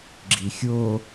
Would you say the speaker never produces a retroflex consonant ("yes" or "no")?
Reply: yes